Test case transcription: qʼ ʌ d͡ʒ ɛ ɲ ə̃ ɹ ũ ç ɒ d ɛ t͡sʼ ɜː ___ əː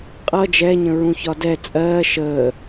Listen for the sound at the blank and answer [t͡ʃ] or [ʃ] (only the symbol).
ʃ